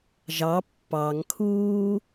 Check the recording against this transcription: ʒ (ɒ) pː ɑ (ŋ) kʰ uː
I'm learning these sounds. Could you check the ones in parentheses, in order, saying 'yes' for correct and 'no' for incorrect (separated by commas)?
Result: no, yes